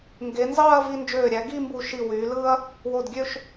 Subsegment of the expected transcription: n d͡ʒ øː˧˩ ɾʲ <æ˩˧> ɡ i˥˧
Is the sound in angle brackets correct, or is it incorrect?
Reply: correct